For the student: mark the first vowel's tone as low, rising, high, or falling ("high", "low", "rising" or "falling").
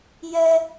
high